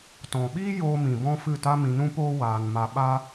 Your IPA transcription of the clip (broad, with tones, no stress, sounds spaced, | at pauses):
t ɔ̃˨ ɓ iː˦ j oː˦ m ĩ˧ b ɔ̃˦ f ɨ˦˨ t a˦ m ĩ˧ n ũ˦ p oː˦ w aː˨ n m a˨ ɓ a˧